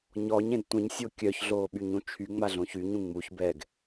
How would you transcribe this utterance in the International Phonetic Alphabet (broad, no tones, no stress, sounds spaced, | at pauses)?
ɲ ɔ ɲ ẽ d tʷ ə̃ ɲ sʲ o kʲ œ ç ɮ oː ɓ y ɲ ũ t͡ʃʰ y ŋ͡m a ɮ õ ç y ɲ ũ ŋ͡m u ç b ɛ ɡ